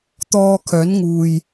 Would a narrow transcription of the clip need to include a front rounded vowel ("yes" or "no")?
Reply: yes